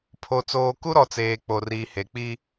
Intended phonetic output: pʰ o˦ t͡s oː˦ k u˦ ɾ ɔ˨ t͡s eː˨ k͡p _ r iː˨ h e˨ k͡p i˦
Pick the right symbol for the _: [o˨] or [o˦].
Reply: o˨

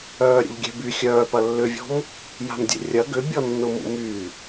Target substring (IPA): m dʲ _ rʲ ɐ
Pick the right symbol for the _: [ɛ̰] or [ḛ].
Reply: ḛ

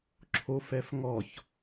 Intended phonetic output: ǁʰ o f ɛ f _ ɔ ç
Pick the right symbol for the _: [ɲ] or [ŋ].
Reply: ŋ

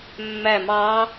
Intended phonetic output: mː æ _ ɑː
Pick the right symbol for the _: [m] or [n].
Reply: m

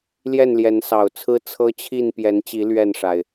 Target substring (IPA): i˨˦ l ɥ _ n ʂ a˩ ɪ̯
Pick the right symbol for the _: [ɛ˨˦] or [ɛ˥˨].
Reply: ɛ˥˨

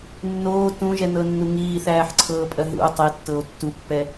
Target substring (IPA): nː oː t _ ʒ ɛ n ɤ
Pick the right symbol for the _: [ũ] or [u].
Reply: ũ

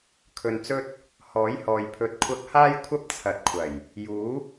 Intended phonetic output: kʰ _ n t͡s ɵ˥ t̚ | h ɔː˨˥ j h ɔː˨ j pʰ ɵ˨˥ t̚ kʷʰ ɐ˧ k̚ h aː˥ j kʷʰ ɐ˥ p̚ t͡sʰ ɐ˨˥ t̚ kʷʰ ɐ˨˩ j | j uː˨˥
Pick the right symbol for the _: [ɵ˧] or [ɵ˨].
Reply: ɵ˨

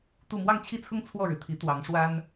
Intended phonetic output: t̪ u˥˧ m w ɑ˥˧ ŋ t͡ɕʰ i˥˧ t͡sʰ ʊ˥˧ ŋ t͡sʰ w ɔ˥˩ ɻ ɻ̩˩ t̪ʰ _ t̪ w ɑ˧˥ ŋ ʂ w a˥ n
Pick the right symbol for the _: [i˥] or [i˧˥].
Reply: i˧˥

